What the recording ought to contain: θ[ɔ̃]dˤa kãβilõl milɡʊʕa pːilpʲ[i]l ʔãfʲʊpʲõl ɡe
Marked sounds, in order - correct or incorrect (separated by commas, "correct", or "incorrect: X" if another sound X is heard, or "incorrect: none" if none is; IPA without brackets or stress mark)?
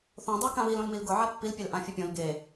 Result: incorrect: õ, incorrect: e